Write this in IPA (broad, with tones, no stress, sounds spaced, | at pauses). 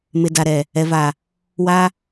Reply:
m ɪ˨ d a˨ ɾ ɛ˨ | ɛ˨ v a˨ | w a˦